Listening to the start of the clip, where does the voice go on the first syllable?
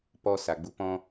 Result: high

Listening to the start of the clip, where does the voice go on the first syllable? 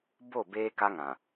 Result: falling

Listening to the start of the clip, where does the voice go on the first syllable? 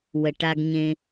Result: low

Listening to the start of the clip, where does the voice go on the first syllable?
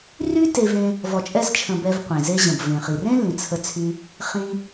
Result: high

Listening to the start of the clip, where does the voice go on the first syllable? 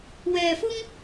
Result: low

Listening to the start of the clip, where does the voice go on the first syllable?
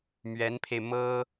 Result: rising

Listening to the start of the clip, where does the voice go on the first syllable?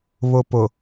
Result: low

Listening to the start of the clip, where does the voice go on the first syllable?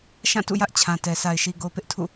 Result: falling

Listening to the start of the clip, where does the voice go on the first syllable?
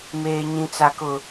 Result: low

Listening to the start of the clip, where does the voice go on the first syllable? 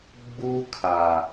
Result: high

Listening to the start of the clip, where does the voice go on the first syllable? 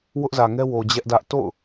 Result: high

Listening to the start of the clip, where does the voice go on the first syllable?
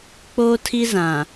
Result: high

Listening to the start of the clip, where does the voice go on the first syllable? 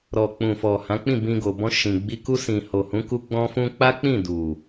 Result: low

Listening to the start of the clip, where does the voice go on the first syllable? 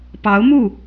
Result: rising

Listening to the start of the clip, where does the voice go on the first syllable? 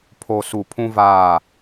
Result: low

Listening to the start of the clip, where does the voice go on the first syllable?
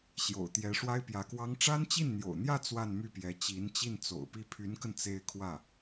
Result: low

